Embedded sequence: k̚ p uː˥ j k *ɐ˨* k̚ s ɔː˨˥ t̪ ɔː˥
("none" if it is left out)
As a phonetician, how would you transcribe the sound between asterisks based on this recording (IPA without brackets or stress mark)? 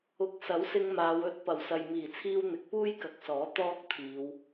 ɐ˨